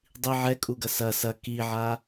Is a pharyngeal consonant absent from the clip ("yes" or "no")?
no